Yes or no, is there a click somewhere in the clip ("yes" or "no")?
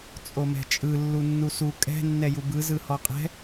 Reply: no